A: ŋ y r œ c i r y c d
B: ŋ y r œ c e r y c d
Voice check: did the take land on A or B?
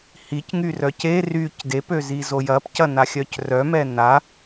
B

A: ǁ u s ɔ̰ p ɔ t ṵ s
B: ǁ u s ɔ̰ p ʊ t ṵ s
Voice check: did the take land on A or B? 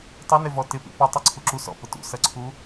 B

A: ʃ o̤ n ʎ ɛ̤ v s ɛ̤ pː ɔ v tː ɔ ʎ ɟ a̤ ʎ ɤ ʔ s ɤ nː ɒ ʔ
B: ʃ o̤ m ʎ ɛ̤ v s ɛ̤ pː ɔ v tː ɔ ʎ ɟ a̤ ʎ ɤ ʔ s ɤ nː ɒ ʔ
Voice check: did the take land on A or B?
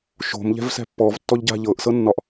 B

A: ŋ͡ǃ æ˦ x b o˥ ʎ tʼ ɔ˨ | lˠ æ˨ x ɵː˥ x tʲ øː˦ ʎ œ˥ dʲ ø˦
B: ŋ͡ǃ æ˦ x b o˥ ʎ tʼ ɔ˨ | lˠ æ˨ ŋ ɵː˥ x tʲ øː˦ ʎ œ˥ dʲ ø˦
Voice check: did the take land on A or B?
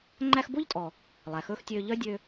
A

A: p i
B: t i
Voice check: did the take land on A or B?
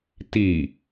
B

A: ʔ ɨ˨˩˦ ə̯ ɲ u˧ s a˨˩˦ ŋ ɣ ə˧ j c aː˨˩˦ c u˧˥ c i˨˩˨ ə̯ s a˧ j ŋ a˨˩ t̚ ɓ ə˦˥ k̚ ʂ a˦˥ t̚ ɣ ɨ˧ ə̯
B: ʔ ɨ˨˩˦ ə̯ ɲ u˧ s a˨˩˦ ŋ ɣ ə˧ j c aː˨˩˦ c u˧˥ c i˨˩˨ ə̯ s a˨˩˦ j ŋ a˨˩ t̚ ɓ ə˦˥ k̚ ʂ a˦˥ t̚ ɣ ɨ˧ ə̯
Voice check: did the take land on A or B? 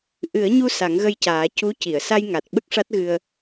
A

